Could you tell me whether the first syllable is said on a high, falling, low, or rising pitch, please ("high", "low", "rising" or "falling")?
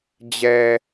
low